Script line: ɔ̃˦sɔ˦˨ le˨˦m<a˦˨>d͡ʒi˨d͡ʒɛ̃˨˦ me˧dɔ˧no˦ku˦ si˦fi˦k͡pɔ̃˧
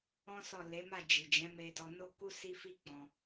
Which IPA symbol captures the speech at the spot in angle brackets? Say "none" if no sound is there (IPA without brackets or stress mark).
a˦˨